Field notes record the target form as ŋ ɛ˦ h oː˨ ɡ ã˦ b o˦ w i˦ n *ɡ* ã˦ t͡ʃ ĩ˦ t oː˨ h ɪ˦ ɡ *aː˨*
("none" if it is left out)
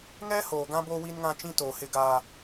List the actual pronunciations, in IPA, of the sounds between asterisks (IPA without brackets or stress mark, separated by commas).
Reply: ŋ, aː˦